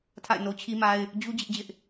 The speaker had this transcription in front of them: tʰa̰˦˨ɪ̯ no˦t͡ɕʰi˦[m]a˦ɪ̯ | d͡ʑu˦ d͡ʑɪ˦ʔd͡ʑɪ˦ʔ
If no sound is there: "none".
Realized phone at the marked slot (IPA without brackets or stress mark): m